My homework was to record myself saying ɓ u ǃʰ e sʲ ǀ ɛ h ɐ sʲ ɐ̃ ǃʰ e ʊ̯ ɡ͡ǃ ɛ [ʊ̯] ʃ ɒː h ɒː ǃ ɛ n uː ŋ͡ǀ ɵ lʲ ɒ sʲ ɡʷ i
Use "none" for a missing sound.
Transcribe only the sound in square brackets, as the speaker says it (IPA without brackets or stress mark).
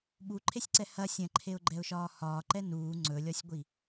ʊ̯